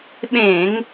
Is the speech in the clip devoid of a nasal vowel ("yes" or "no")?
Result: no